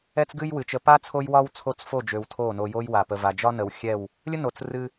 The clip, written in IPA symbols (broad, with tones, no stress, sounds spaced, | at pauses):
ɛ˦ t͡s ɡ ɨ˦ j w ɨ˨ t͡ʃ ə˧ p a˦ t͡sʰ o˦ j w ɒ˦ w t͡sʰ o˦˨ t͡s f o˦˨ d͡ʒ ø˨ w tʰ o˦˨ n o˧ j o˦ j w a˨ p ə˧ v a˨ d͡ʒ ɒ˦ n ə˨ w xʲ ɛ˦˨ w | lʲ ə˦ n o˨ t͡s r ɨ˧